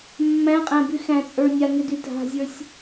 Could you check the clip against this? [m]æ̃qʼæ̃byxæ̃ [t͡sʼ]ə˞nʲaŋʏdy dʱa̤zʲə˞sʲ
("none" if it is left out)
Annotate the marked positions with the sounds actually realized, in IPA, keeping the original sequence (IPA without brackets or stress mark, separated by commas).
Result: mː, t͡sʼ